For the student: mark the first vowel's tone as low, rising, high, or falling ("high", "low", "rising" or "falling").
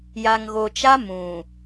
low